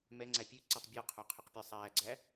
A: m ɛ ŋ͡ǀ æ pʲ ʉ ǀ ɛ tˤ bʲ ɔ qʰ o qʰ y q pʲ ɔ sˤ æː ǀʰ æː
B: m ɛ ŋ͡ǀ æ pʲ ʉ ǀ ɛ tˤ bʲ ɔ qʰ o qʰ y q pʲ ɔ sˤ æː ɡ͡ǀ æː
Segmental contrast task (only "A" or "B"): B